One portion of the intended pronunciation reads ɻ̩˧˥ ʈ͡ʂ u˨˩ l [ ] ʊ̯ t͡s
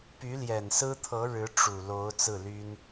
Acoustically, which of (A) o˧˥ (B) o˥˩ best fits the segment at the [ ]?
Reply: A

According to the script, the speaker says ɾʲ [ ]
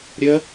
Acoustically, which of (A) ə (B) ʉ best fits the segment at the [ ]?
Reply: A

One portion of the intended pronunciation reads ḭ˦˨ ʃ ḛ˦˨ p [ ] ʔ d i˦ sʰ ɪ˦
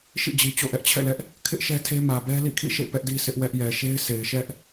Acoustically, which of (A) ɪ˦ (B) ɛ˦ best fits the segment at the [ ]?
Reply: B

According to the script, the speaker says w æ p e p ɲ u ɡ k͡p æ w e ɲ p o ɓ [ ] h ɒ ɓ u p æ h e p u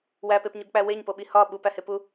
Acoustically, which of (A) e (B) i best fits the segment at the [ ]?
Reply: B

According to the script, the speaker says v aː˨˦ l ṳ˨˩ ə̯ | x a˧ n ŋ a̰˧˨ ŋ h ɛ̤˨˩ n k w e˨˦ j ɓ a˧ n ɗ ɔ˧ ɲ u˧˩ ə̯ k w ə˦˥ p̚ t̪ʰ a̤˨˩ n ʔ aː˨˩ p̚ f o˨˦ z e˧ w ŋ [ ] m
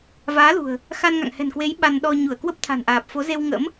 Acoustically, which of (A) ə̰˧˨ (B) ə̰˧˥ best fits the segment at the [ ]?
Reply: B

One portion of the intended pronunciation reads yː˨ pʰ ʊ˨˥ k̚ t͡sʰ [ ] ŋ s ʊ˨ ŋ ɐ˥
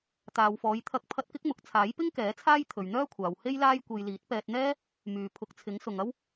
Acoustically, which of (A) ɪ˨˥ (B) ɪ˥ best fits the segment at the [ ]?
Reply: A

